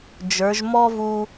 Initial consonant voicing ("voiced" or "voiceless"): voiced